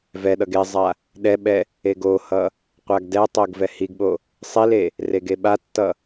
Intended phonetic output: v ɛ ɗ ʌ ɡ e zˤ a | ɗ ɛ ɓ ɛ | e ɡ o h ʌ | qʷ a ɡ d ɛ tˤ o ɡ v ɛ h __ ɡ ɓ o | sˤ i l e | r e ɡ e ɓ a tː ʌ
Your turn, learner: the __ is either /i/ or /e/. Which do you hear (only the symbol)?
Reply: i